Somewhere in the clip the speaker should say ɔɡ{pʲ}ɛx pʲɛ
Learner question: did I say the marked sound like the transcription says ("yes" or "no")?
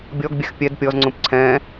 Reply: no